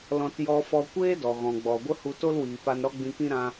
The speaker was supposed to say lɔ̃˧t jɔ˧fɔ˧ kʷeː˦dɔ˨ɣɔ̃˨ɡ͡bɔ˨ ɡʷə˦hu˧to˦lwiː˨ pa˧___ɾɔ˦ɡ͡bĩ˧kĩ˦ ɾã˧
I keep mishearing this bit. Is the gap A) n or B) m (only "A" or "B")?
A